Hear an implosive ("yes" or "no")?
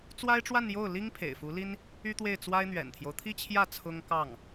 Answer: no